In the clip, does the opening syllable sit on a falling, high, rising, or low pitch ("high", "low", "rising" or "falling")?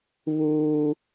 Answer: high